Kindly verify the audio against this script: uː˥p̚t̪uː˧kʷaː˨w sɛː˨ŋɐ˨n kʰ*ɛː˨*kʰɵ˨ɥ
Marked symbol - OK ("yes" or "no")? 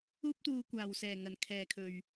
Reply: yes